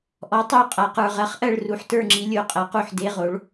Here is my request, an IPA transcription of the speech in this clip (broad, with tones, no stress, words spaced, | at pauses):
ʔɔ˨˥tˤo˥˨ qʼa˧qə˞˧ ʁɜ˨˥χʔɜ˥˨ɭ ru˨˥ħtə˞˥˨ŋ͡ǁi˨˥ lʲo˨˥qʼɐ˨˥qu˥˨ħ de˧˥˧ʁo˨˥ɭ